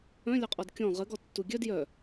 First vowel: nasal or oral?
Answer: nasal